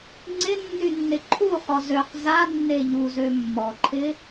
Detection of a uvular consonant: present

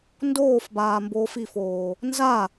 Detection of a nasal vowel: absent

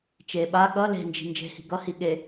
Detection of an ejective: absent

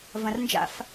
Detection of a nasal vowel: present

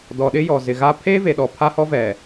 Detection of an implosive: present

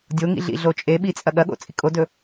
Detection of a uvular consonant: absent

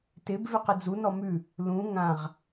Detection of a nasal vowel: present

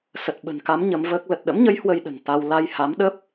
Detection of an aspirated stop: absent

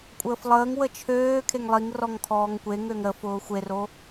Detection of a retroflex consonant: absent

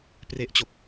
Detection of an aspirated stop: absent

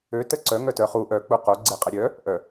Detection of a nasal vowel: absent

